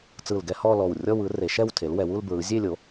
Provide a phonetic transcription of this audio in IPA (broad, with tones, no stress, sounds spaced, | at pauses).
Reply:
t͡s ɯ˧˩ l ɡ ɛ˥˧ h ɔ˥˧ l ɔ˧˩ w rʲ ɔ˥˧ w ɯ˩˥ r e˩˥ ʃ ɛ˥˧ w tʰ e˩˥ l w ɛ˩˥ w u˥˧ l b ɹ ɯ˩˥ zʲ e˥˧ lʲ o˩˥